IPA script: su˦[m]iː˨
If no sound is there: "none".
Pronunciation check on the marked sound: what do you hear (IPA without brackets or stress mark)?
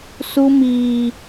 m